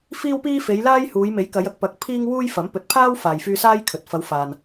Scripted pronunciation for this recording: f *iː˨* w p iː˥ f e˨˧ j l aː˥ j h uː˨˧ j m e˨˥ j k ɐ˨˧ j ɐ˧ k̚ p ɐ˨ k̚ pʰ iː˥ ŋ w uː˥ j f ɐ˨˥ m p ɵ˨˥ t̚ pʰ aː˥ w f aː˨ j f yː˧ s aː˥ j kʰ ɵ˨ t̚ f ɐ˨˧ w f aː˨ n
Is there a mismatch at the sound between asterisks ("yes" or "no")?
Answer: yes